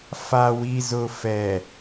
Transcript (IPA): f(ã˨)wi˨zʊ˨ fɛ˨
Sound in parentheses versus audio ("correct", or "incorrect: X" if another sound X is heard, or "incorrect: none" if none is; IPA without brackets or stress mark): incorrect: a˨